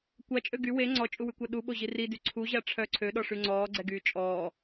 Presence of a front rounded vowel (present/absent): present